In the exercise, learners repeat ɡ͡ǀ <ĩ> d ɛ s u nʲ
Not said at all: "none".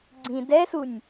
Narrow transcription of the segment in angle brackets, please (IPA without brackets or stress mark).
ĩ